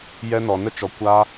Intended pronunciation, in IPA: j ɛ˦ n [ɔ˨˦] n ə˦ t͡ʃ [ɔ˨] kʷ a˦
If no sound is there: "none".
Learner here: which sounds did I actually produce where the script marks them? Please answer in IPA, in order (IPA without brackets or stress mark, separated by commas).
ɔ˨, ɔ˨